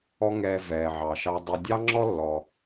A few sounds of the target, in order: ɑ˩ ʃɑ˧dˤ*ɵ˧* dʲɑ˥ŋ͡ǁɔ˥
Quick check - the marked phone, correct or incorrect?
correct